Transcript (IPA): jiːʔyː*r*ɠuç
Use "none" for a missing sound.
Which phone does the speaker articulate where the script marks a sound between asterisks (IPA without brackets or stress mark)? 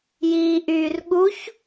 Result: r